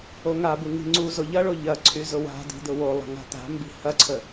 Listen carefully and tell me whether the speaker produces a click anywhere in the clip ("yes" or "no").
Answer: yes